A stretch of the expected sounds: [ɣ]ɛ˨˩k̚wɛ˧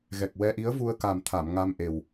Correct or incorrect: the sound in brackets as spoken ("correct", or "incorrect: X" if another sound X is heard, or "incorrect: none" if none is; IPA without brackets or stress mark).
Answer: correct